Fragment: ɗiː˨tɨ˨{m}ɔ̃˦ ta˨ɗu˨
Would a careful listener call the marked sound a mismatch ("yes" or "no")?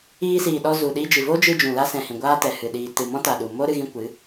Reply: no